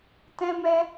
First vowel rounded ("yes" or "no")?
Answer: no